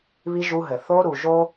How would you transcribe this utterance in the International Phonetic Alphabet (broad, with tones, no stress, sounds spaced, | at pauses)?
β i˧ ʒ u˧ ɦ ɘ˨ θ o˧ ɾ u˨ ʒ o˦